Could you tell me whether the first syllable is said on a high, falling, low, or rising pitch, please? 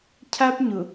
high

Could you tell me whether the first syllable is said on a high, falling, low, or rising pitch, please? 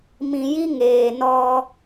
low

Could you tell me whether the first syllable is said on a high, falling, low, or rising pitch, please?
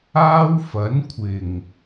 high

